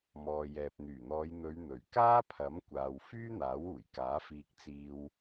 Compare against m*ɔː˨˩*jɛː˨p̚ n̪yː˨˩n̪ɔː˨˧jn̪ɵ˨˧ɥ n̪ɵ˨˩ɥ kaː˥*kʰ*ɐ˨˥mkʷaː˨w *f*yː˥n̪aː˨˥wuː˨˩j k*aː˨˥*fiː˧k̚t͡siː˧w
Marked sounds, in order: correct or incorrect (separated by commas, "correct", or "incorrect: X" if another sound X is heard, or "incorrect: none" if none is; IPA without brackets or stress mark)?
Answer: incorrect: ɔː˨, incorrect: pʰ, correct, correct